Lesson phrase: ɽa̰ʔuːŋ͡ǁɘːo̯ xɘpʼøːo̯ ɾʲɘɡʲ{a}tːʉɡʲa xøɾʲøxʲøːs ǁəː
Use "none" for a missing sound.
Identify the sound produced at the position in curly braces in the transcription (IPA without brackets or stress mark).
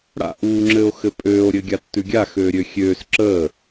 a